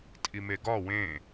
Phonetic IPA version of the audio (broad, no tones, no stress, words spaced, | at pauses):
tʼimeɡɒ wẽ